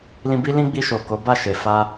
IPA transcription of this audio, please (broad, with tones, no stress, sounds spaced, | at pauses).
l ĩ˧ b i˦ l ĩ˦ ɡ͡b i˧ ʃ o˨ k o˨˦ b a˦˨ ʃ e˨ f a˧